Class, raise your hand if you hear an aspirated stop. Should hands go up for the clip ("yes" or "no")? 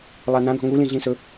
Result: no